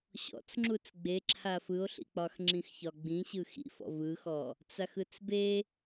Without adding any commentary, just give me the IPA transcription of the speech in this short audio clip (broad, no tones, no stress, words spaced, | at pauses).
ɕɔ̰t͡s ŋ͡ǁut͡sɡ͡beǁʰa fɯo̯ɬḭk͡pɒxŋ͡ǁĩx çɒɡ͡bĩ ɕɯxḭfɔ̰ vɯxɔ | t͡saxɯt͡sbe